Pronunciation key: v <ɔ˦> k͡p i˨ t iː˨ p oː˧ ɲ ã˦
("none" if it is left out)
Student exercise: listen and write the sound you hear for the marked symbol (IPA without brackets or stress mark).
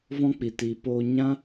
ɔ̃˦